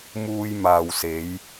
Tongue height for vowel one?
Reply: high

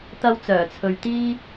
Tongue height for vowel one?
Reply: low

